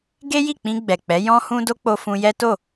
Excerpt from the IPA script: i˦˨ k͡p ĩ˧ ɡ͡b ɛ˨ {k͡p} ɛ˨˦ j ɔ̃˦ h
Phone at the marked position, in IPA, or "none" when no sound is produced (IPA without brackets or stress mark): k͡p